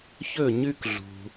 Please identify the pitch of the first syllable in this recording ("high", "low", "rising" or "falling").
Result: falling